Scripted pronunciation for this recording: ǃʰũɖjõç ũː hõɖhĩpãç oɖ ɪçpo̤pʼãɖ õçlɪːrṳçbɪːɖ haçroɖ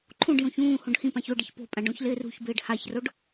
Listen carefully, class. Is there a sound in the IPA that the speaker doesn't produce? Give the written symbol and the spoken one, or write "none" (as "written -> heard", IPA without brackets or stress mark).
none